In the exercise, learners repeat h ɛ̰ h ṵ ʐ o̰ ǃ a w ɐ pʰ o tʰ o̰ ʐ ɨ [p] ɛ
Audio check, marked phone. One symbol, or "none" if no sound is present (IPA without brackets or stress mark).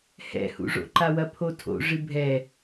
bʱ